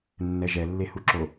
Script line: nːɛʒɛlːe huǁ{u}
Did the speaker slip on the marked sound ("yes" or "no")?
yes